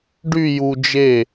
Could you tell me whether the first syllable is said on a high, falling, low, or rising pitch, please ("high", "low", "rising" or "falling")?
falling